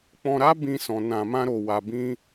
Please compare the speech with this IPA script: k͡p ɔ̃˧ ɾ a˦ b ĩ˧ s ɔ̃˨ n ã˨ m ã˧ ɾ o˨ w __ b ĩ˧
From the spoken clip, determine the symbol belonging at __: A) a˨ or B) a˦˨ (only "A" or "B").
A